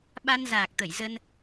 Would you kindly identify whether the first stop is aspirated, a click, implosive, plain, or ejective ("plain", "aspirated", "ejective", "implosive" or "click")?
implosive